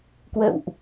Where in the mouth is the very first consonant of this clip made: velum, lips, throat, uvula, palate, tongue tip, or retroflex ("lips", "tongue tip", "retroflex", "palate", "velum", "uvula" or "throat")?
velum